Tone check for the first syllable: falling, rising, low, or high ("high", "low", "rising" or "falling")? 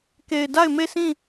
low